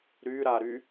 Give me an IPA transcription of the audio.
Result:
ɾyɾaɾy

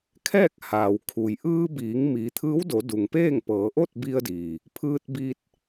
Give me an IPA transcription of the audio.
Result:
kʰɛː˥˨k̚haː˩wkʰu˩j ʔɯː˧biː˩˧ŋ miː˩˧t̪ʰɯː˧˥wdo˩˧ du˩ŋpeː˥˨ŋpɤː˩˧ ʔo˥˨t̚bi˧ə̯diː˩ | pʰɯː˧t̚biː˧t̚

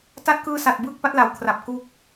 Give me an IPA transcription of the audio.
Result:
ta˦˥t̚kɯː˧sa˨˩t̚ bɯː˥˩k̚pa˦˥t̚la˩˦wkʰra˨˩p̚ ku˦˥k̚

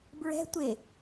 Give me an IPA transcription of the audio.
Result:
bɹɛ̤ tʷe

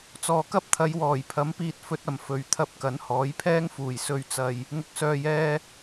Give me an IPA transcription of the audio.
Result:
t͡sɔː˨kɐ˥p̚t̪ʰɐ˨˧j wɔː˨˩jpʰɐ˨˥mpiː˧t̚ fɵ˧t̚ɐ˨˩m fɵ˨ɥ t̪ʰɐ˧p̚ kɐ˨˥nhɔː˨˥jpʰɛː˥ŋfuː˨˩j sɵ˨ɥt͡sɐ˨j | ŋʊ˨k̚sœː˨jɛː˧

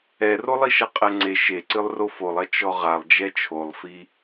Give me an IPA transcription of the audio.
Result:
ɛrolˠiʃɐ qʼɛŋ͡ǀe ʃeǀɨlˠro folˠɐ t͡ʃɔʁalˠd͡ʒɛ t͡ʃʰolˠfi

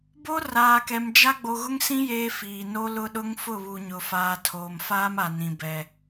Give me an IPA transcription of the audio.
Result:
bo˦ raː˨kɛ˨md͡ʒa˦ ɡ͡bo˨ɣʊ˦ŋsĩ˦ jeː˦fiː˨ no˦lʊ˦ɗʊ˦ŋ fʊ˦˨βu˨ɲʊ˨faː˨ tʰoː˨mfaː˦ma˨nĩ˨ bɛ˨

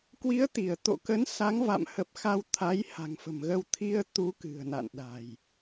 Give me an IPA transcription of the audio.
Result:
kwi˨˦ə̯t̪i˧˩ə̯ t̪o̰˧˨kə˨˦n sa˨˦ŋva̰˧˨mhə˨˩p̚ xa˧wt̪ʰa˨˦j ha̤˨˩ŋfə̤˨˩mɣə˧w t̪ʰi˧ə̯t̪u˨˦ kɨ̤˨˩ə̯na̰˧˨nɗa̤˨˩j

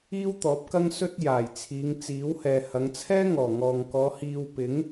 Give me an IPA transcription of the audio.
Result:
iː˥wt̪ɔː˨˥p̚kɐ˥ŋ sɵ˥t̚jaː˨˩jt͡sʰiː˨˧ŋ t͡siː˨˥whɛː˨ hɐ˨˧ŋt͡sʰɛː˥ŋɔː˨˩ŋɔː˨ŋ kɔː˨˧hiː˧wpɪ˨˥ŋ

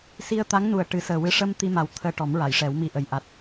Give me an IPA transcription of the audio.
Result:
si˧ə̯t̪a˧˥ŋnu˨˩ə̯ ʈɨ˨˩˦səː˨˩wɨ˧˥ ʂə˧m t̪i˧ma˨˩w t̪ʰəː˧ʈɔ˨˩˦mɹa˨˩˨jʂɛ˨˩˦w mi˧ʔə˨˩j ʔa˨˩t̚

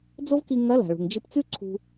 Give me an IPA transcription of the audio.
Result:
d͡zo˥vki˧ŋɐ˧˥la̤˩ ɭṳ˩ŋ d͡ʒɨ˧pt͡sʉ˥ǀʰṳ˧

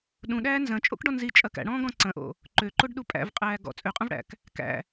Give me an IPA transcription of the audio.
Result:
ɗũɗæː nzɐ̃t͡ʃʼo̰kɖɔ nzit͡ʃʼɐ kæ̰ɽɔ̃ːɡɔ̃ ǀɐ̃ʔo̰ | ǃøǃoɖɗu pʼæ̰vqʼæː ɡɔ̰ t͡sʼøqʼɐ̃vɽæ̰k | kæ̰

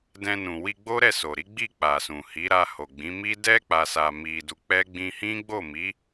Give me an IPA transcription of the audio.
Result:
dɛ̃˧nũ˨ wi˧ɡ͡bo˦ɾɛ˦˨so˨ ɾi˨˦ ɡ͡bi˦˨k͡pa˨sũ˨ hi˨˦ɾa˧ ho˨ɡ͡bĩ˨˦mi˦ dɛ˦ k͡pa˧sa˧mi˧du˧ k͡pɛ˦ ɡ͡bĩ˧hĩ˦ ɡ͡bo˦˨mi˨˦

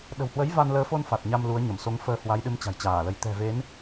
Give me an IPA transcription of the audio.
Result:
ɗə̤˨˩whwə˨˦j va˧nləː˨˦fo˧n fa˨˩t̚ɲa˧m lu˨˦ə̯ɲə˧˩m so˨˦ŋfəː˧hwa˨˦jɗɨ˨˦m t͡ɕa̤˨˩jt͡ɕaː˧˩lə˨˦j t̪ɛ̤˨˩ve˨˦n

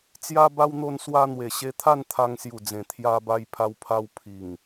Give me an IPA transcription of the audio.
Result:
t͡sja˦ba˦wn̪o˥˧nswa˦ n̪we˨˩ɕe˧t̪ʰa˥˧n t̪ʰa˧ŋsju˨˩d͡zẽ˨˩ t̪ʰja˧ba˧j pʰa˧wpʰa˧w pʰi˨˩ŋ

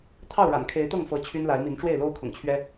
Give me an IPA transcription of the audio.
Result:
t̪ʰɑ˥˨ʊ̯ɻa̰˨˩nkʰe˨˦ɪ̯t̪ɤ˥˨ŋ fɤ˨˦ t͡ɕʰy˦nla˨˦ɪ̯mi˨˦n ʈ͡ʂwe˥˨ɪ̯lo˦ʊ̯kʰʊ̰˨˩ŋt͡ɕʰɥɛ˦

